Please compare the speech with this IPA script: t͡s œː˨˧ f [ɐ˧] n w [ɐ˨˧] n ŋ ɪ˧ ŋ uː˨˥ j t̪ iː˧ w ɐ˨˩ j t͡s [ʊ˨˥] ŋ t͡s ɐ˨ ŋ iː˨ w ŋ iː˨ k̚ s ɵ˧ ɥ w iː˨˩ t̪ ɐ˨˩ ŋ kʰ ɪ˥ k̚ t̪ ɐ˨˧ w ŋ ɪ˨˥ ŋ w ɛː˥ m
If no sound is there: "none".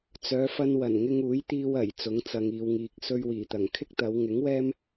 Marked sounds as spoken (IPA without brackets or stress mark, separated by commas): ɐ˧, ɐ˨˩, ʊ˨˥